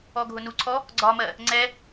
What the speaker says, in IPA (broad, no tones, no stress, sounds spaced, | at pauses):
ɔ ɡʱ ʊ n u ǀʰ ɔ | ɡ͡ǀ ɒ m ɜ | ŋ͡ǀ ɛ